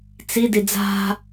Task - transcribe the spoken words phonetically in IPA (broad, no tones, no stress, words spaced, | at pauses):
t͡sidi d͡za̤